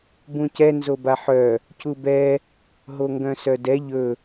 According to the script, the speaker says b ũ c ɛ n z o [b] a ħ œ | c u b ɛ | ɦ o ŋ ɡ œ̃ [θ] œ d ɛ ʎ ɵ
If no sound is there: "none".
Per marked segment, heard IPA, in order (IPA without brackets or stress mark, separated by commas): b, s